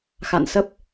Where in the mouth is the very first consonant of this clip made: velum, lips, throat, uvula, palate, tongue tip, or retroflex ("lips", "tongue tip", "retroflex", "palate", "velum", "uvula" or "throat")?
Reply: velum